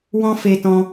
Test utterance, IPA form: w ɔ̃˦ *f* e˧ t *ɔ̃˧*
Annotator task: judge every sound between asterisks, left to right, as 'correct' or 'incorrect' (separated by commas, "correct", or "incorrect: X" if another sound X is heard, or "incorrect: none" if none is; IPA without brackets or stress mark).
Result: correct, correct